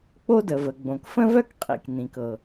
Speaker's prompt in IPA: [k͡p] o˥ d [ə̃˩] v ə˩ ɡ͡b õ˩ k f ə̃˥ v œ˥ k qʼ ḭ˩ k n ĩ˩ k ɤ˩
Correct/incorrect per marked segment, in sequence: correct, incorrect: ə˩

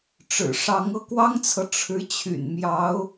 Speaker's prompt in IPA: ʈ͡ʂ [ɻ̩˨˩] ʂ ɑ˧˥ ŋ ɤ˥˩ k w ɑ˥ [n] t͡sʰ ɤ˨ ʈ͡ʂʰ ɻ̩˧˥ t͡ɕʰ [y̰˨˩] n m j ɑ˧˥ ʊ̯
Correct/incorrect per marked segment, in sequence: correct, incorrect: ŋ, correct

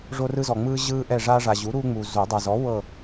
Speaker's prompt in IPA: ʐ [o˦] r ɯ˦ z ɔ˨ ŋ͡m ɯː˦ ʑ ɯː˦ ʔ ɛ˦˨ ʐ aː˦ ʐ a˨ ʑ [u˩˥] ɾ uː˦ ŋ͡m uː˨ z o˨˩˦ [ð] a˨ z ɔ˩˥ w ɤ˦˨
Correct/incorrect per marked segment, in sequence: correct, correct, incorrect: dˤ

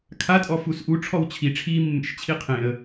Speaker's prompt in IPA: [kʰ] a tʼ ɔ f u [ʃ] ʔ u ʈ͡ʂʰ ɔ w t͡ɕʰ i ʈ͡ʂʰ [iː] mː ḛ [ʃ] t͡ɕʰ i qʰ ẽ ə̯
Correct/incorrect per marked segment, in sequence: correct, incorrect: s, correct, correct

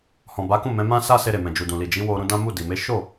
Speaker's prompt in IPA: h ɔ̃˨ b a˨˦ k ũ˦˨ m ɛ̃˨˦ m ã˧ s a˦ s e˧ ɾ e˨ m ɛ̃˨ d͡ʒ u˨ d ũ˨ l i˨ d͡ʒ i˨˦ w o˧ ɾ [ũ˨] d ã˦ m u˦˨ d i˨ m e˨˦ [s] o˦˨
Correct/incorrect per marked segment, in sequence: incorrect: ũ˧, incorrect: ʃ

